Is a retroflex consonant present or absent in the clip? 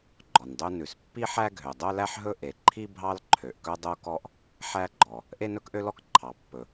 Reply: absent